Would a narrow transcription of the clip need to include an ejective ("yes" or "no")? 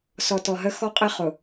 yes